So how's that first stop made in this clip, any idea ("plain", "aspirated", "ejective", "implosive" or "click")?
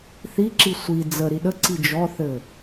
click